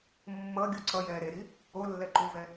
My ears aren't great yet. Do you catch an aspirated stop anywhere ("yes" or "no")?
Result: no